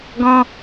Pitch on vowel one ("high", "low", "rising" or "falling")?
high